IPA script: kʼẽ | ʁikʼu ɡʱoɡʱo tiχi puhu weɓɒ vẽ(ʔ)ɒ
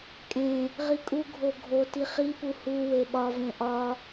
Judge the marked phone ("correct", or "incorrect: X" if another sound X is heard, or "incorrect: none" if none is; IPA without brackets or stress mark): correct